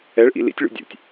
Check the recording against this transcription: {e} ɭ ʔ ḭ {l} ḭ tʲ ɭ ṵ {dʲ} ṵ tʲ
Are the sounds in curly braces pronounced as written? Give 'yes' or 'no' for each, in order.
no, yes, yes

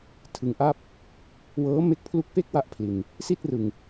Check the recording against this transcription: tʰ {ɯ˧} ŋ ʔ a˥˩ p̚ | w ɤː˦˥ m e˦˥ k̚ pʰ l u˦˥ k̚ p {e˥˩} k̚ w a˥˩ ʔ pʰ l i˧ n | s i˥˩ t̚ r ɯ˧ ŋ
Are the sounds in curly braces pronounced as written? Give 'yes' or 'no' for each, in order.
yes, yes

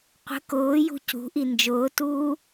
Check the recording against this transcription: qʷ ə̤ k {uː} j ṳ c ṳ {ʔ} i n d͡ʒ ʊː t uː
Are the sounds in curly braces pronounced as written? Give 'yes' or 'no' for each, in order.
no, yes

